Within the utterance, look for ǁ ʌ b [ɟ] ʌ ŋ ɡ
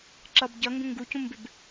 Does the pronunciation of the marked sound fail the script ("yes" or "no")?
no